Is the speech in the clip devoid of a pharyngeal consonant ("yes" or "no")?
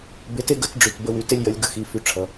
yes